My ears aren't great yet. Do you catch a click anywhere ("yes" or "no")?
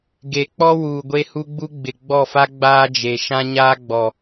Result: no